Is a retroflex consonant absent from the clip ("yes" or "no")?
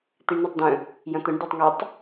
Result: no